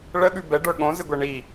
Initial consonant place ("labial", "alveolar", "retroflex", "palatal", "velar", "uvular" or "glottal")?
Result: retroflex